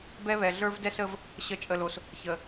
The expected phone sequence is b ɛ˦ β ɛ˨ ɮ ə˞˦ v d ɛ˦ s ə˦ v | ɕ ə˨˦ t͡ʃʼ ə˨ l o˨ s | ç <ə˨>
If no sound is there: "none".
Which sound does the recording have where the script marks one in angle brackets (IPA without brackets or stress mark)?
ə˨